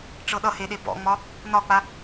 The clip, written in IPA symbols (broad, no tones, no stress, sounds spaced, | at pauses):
ʈ͡ʂ ɤ ɗ ʌ h e ɗ e b ɔ̰ ŋ͡m ɒ | n ɒ k͡p a